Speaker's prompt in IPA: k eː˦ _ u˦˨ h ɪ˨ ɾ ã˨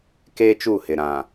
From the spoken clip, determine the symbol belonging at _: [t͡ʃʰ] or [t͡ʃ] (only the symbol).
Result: t͡ʃ